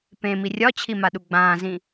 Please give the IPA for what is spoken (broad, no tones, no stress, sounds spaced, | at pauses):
p ẽ m i rʲ ɒ t͡ɕʰ i m a ɗ u ɡ͡b ãː z ĩ